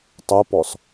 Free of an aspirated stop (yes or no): yes